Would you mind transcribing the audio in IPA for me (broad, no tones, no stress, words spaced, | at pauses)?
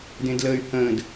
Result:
dẽdləːy̯hə̃ːd